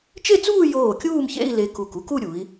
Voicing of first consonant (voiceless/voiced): voiceless